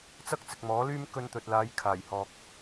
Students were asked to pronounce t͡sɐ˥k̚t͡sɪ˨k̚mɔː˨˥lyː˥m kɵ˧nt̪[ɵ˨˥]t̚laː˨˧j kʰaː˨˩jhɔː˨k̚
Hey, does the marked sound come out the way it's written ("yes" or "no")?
no